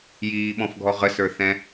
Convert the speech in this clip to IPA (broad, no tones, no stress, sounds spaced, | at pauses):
j iː ɓ ɔ̃ f ɡʱ ɔ ʁ ə s ə˞ θ ɛ̃